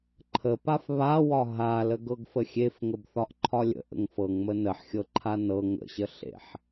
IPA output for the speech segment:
ǃʰ ə p a f β a w ɒ ɦ a l ə ɡ ɤ ɡ f ə xʲ e f ŋ ə b θ ɒ ʔ ǃʰ ɒ lʲ ə̰ ʔ ə̰ ŋ f ɤ ŋ m ə n ə ħ xʲ ɤ ǃʰ a n ɤ ŋ ə̰ ɕ ə ɬ ḛ ħ

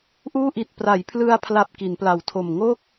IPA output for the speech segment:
ʔ uː˥˩ ʔ i˨˩ t̚ p r a˩˦ j pʰ l ɯ˧ a̯ pʰ l a˨˩ p̚ k i˩˦ n p l a˨˩ w tʰ o˨˩ m ŋ o˥˩ k̚

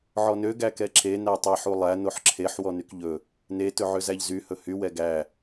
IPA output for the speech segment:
ʕ ɔ n ø ɡ æ k ɛ ǁ e n æ tˤ ɛ ħ u lˠ æ n o ħ ǁʰ e ħ w ɔ n y k ʎ ɵ | n e t ɵ ʕ ø z æ ʎ z y h ɵ h y w ɛ ɡ æ

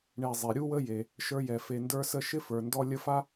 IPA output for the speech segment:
ɳ e˨ zˤ e˩ ɾʲ u˥ w ə˥ j e˩ | ʃ ə˞˦ j ɛ˩ f e˨ n d ə˞˦ s ə˦ ʃ ɪ˥ f ə˞˩ n d ɔ˦ lʲ ə˦ f a˥

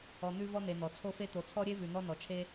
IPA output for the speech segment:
ɔ˨ n̪ ʉ˦ v ɔ˦ n̪ e˨ n̪ ɔ˩ t͡sʰ o˦ f e˦ t̪ o˨ t͡sʰ ɔ˥ ɾʲ e˥ v ʉ˨ n̪ ɔ˦ n ɔ˨ t͡ʃʰ e˥

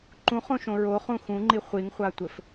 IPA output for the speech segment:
ǃ ũ χ õ ʃ õ ɹ o χ ũ x ũ ŋ͡ǃ i χʷ i ŋ χʷ a tʷ ɘ f

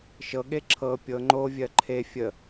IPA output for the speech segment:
ʃ ɤ ɠ e ǁʰ ɤ pʲ ɤ ŋ͡ǃ o vʲ ɜ ǃʰ e fʲ ə

